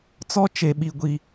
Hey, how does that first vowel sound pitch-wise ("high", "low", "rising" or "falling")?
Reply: high